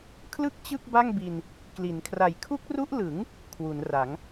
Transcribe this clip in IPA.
kʰ l ɯ˥˩ k̚ t͡ɕ ɯ˥˩ k̚ b a˥˩ ŋ b i˧ n | k l i˩˦ n kʰ r a˨˩ j kʰ u˦˥ k̚ r u˦˥ ʔ l ɯ˩˦ ŋ | kʰ w u˩˦ n r a˩˦ ŋ

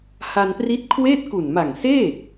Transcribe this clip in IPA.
h a˧ n p r i˦˥ t̚ kʰ w eː˥˩ t̚ k u˨˩ n m a˨˩ ŋ s eː˥˩

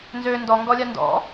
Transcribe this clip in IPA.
n z ø n d ɔ ŋ ɡ ɔ lʲ a n d ɔ̰

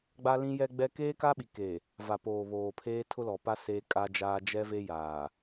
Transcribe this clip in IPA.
ɡ͡b a˦ l ĩ˦ j ɛ˦ ɡ͡b ɛ˦ k eː˦ k a˦ ɓ i˨ k e˨ | v a˨ p oː˨ β oː˨ pʰ eː˦ tʰ ʊ˦ l ɔ˨ p a˦ s eː˦ kʼ a˦ d͡ʒ aː˦ d͡ʒ ɛ˦ v e˦ j aː˨

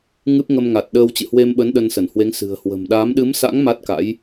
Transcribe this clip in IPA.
ŋ ɨ˦˥ p̚ ŋ ə˧ m ŋ a˨˩ t̚ ɗ əː˧ w t͡ɕ ɨ̰˧˨ h w e˧ m ɓ ə˨˦ n ɗ ə˧ n s ə˧˩ n h w e˨˦ ŋ s ɨ̤˨˩ ə̯ h w ə̤˨˩ m ɗ aː˨˦ m ɗ ɨ˨˦ m s a̰˧˥ ŋ m a˦˥ t̚ k a̰˧˥ j

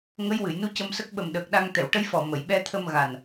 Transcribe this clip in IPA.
ŋ ə˧˥ j w ɨ˨˩˨ j n u˧˥ c ə˧ m s ə˦˥ k̚ ɓ ə˨˩ m ɗ əː˨˩ k̚ ɗ a˧ ŋ t̪ ɛ˨˩˨ w ʈ ə˧˥ j f ɔ˨˩ m ə˨˩˨ j ɓ ɛ˧ t̪ʰ ə˧ m ɣ a˨˩ n

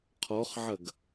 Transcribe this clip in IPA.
qʰ ɔ χ ʕ ɐ ɡ

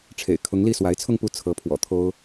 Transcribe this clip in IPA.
ʈ͡ʂʰ ḛ˨˩ ɪ̯ kʰ ʊ˧˥ ŋ l i˥˩ s w a˧˥ ɪ̯ t͡sʰ ʊ˥˧ ŋ p u˥˩ t͡sʰ ɤ˧˥ pʰ w ɔ̰˨˩ t̪ʰ o˥ ʊ̯

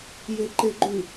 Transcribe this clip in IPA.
j e ǃ e ɡ͡ǃ ʉ

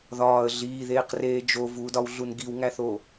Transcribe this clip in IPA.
ð ɒː ə̯ ɮ iː ð eː q r eː d͡ʒ o v uː d ɒ w ɮ u n ɡ i w ŋ æ θ o

